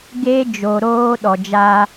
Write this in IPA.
ɡe˦ d͡ʒo˨ɾoː˦ ɗɔ˨d͡ʒaː˦

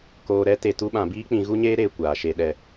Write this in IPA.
koː˧ɾɛ˦ te˧tu˦ɓã˧ biː˦k͡pĩ˧ɣu˦ɲeː˦ ɾeː˧kʷaː˨ʃe˧ɗɛ˧

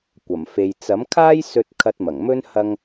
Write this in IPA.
kʷɐ˨˩mfe˨j t͡sɐ˨˥mkʰaː˥jsɵ˧t̚ kʰɐ˧t̚mɐ˨˩ŋmɵ˥n hɐ˥ŋ

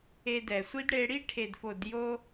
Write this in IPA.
e˧dɛ˨sʷi˦d ɽe˧ɽi˦ ʈʰe˨dfo˨djo˧

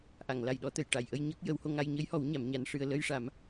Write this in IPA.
ʔa˨˩˨ŋla˨˩jɗɔ˨˩˦t̪ə˨˩˨j ʈa˨˩˨jʔə˧jɲə˦˥k̚ jə˨˩˦who˧ŋa˧j ɲə˧˥jhɔ˨˩˦w ɲa˨˩˦mɲa˧˥nʂɨ˧ə̯ lə˧jʂa˨˩˦m

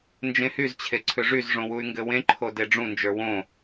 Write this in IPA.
nd͡ʒẽhyzt͡ɕʰe ǀʰʏʐyzʐõ wuy̯ŋɡɘwẽǃʰo deɖ͡ʐũnd͡ʒə˞ wõ

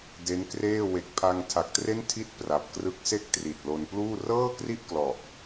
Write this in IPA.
de˦˥nkreː˥˩ we˨˩k̚pʰa˧ŋtʰa˨˩k̚tre˥˩n tʰi˥˩t̚pra˨˩p̚ krɯ˦˥k̚se˥˩k̚tri˨˩t̚ lo˧n pluː˥˩ rɤː˥˩kri˥˩ʔ klɔ˨˩ʔ

